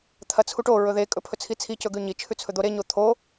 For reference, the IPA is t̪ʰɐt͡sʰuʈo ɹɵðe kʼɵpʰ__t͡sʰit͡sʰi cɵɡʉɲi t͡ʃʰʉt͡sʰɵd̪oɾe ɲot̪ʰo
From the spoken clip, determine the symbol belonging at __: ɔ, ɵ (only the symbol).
ɵ